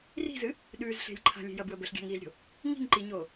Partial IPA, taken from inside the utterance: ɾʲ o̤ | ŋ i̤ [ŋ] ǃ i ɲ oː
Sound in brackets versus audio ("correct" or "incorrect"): correct